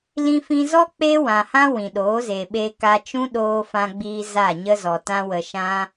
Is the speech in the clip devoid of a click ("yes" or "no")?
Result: yes